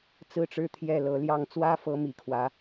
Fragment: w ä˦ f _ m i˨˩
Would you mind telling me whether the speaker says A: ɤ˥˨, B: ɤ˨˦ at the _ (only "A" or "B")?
B